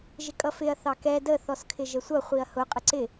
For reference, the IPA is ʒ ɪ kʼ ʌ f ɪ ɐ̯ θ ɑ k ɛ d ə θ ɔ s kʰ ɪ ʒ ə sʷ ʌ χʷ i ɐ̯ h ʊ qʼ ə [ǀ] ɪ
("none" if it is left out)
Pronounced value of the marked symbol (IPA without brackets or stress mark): ǀ